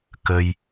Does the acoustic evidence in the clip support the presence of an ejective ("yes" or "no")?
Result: no